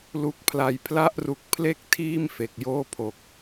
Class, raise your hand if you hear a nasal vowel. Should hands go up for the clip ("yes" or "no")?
no